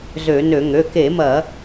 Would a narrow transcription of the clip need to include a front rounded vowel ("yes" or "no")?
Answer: yes